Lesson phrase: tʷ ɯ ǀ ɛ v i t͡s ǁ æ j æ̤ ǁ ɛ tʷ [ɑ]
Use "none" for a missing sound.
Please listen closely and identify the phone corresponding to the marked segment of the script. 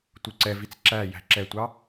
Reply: ɑ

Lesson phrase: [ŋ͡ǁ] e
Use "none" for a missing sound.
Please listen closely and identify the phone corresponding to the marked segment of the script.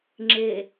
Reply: ŋ͡ǁ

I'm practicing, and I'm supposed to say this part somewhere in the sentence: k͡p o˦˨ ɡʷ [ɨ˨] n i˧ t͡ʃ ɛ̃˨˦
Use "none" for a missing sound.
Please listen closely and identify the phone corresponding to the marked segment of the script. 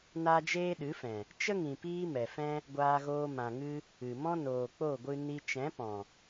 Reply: ɨ˧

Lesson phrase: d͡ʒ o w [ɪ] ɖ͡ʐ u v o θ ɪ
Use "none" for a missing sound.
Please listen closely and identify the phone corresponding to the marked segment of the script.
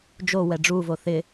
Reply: ɛ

